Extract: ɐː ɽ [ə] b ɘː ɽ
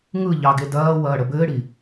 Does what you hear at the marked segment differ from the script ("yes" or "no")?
no